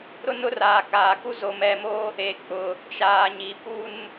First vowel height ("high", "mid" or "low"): high